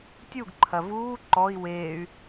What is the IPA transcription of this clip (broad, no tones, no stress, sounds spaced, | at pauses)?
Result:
tʲ u ɡ ǃʰ ɐ v uː ǃ ɔ i̯ w eː y̯